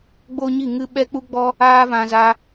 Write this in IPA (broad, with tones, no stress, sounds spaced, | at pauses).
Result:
ɡ͡b o˦ ɲ i˦˨ ŋ ɨ˦ ɓ ɛ˦ k͡p u˦ ɡ͡b ɔ˦ | aː˦ v ã˧ z a˧